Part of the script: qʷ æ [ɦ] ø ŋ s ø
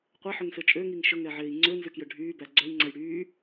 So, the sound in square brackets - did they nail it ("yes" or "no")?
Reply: no